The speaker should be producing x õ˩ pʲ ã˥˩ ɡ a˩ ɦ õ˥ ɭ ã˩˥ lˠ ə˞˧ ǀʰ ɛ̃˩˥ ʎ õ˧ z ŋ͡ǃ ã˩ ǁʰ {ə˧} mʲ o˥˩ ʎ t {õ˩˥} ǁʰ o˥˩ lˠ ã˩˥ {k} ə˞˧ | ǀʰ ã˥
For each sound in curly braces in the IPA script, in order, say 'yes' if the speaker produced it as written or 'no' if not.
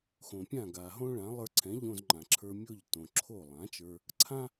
no, no, no

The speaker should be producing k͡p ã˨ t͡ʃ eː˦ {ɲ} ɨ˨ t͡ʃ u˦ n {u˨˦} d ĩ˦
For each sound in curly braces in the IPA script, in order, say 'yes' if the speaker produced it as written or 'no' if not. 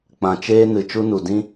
no, no

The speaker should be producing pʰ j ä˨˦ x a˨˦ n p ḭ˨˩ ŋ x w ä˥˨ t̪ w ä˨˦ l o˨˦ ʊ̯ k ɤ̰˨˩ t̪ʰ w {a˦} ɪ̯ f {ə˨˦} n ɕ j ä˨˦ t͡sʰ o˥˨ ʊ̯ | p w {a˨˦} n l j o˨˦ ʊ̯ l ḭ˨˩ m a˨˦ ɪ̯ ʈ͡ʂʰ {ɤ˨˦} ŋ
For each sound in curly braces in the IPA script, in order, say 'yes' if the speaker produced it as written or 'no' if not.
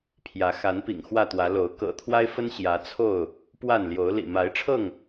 yes, no, no, no

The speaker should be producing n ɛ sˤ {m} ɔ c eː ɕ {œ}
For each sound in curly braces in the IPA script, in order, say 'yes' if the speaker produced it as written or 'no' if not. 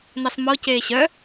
yes, yes

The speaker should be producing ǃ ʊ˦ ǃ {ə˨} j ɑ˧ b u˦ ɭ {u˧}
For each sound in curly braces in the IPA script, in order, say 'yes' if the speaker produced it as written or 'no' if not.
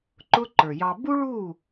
no, no

